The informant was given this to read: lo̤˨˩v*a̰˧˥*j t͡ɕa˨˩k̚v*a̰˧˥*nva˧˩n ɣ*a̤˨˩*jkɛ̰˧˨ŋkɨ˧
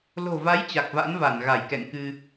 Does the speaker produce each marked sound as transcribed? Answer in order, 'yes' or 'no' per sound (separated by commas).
no, yes, no